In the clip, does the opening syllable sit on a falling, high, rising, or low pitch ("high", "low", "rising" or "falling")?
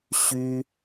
high